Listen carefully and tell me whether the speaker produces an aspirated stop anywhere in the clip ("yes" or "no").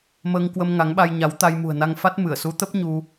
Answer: no